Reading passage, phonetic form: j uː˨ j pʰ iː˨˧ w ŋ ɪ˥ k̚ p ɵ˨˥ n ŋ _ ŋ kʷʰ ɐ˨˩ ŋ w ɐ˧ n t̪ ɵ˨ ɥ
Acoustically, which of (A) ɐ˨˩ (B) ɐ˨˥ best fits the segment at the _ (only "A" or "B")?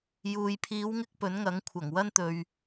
B